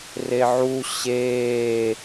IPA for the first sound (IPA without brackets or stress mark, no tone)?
r